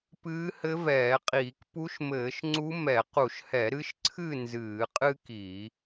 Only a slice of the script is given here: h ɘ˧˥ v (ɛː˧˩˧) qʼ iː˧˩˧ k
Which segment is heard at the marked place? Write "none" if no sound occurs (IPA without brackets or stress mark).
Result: ɛː˧˩˧